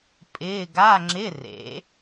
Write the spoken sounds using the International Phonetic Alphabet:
pʼ ɪː˧˥˧ ɡ a˧˥˧ ŋ͡ǁ ɪ˧˥˧ r ḛ˩˥

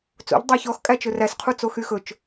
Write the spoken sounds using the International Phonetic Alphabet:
t͡s o̰ ʎ dˤ æ ç ɔ x kʼ æ t͡ʃ ɵ r æ s qʰ u t͡s o x y x ɵ t͡ʃ

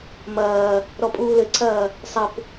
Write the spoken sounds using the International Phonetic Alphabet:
m ɐː | ɾ ɔ pʼ uː l ɘ ǀʰ ɐː | sˤ ɘ p

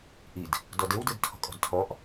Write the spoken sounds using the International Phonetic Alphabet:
ʔ i d | d ɔ d e w d ɯ d tʰ ɔ̤ kʼ ɔ̤ d tʰ ɔ ʔ

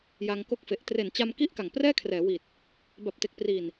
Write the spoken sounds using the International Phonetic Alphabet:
j a˧ ŋ k o˥˩ k̚ f e˨˩ ʔ t r e˨˩ n t͡ɕ a˧ m k i˦˥ ʔ k a˨˩ ŋ p r ɛː˥˩ kʰ r ɛː˩˦ w i˨˩ t̚ | b a˨˩ p̚ t e˨˩ k̚ p r i˨˩ n

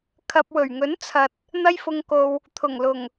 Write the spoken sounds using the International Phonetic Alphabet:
kʰ ɐ˨ p̚ w ɵ˨˩ ɥ ŋ ɵ˨˥ n t͡sʰ ɐ˨ t̚ | n̪ ɐ˧ j f ʊ˨ ŋ k o˨ w | t̪ʰ ʊ˨˩ ŋ l ʊ˨˩ ŋ

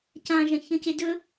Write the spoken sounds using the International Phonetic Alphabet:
c ã ʒ ɐ̃ ç ə̃ c e d ɵ

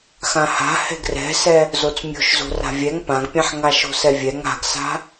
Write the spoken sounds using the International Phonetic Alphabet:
x ã h a̤ h ɛ̤ ɡ r ɛ̤ s ɛ | z o t͡s mʲ o̤ ʃ z o̤ r a̤ vʲ ɛ ŋ p ã ɡ pʲ ã ħ ŋ a ʃ o̤ s ɛ vʲ ɛ ŋ a̤ ɡ s a̤

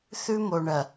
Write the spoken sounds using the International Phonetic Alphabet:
θ ʉ˦ m o˨ ɳ ɐ˨

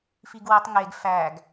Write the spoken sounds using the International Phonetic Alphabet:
f i ɡ w i tˤ ŋ e ɡ f æ ɡ

